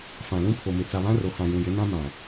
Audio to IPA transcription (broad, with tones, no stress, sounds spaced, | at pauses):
f ã˨ l ũ˦ pʰ o˨ m ɪ˨ t͡s a˨ β ã˦ r o˨ h ã˨ j ũ˨ j ɪ˨˦ n ã˦ m ã˨